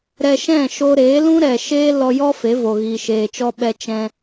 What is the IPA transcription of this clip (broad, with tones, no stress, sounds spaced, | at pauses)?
ɾ ɛ˧ ʃ ɛ̃˦˨ ʃ o˧ ɾ eː˨˦ l ũ˦ ɾ ɛ˨ ʃ eː˦ l ɔ˧ j ɔ˦ f e˨˦ v o˨ ɣ iː˨ ʃ eː˨ t͡ʃ ɔ˧ ɓ ɛ˧ t͡ʃ ɛ̃˧